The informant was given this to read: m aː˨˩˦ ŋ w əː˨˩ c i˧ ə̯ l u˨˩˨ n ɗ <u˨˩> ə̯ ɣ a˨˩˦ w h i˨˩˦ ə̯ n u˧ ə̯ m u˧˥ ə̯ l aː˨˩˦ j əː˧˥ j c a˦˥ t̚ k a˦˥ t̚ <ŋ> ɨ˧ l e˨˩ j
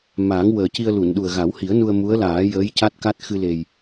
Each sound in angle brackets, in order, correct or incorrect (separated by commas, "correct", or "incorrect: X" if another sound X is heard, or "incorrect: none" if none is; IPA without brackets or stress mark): correct, incorrect: x